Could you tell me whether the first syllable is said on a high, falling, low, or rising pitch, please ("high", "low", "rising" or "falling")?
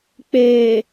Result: low